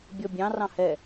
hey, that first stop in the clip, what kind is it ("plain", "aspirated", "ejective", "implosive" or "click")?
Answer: plain